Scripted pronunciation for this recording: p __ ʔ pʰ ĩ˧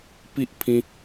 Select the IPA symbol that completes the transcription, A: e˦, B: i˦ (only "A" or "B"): B